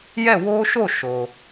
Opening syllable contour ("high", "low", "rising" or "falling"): falling